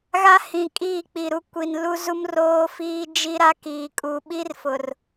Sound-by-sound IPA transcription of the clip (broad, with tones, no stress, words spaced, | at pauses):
ɣa˦ hĩ˨ kʼiː˦˨k͡pi˨ɾu˦ kʷi˨n lu˦ zu˦m roː˦fiː˦d͡ʒi˦ ɾa˦kiː˨kʼu˨ ɓi˦rfʊ˨r